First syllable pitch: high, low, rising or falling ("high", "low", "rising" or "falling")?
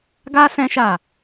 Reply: high